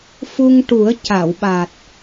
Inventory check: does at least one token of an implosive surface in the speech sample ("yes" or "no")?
yes